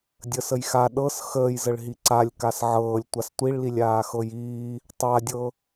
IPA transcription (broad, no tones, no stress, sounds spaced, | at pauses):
dʲ ə s ə j x a ɗ ɤ s x əː j z ə ɭ ɦ i ǀ a lʲ k a s ʕ ɤː lʲ tʷ a s tʷ i ɭ l i lʲ aː x ɤ j iː | tˤ a dʲ ɤ